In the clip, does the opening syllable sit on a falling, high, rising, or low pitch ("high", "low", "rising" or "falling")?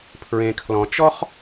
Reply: low